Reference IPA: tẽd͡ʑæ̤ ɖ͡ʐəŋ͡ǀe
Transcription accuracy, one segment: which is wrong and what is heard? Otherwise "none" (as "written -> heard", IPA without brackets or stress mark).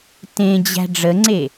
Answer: none